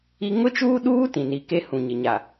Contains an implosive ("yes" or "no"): yes